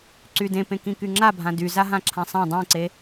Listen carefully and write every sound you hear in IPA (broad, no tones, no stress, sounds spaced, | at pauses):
ǀ y d ẽ p ẽ k ĩ k y ŋ͡ǁ a bʱ ã d y z a ɦ ã ǁʰ ã sˤ ã dˤ ĩ ǀ e